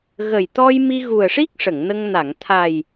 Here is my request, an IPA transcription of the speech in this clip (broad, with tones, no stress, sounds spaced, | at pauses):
ɣ ə˨˩ j t̪ ɔ˧ j m i˧ ɣ u˨˩ ə̯ ʂ i˦˥ k̚ ʂ ə˨˩˨ ŋ n ə˧ ŋ n a˨˩˨ ŋ t̪ʰ a˨˩ j